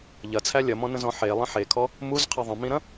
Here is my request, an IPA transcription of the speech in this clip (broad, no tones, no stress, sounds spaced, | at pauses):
ʎ ɐ t͡sʰ æ lʲ ɐ m ɔ̃ n ə̃ z ɔ̃ ħ e lˠ ə̃ ħ e kʰ ɔ | m u z qʰ ɐ ðˤ ə̃ m ĩ ɾ ɐ̃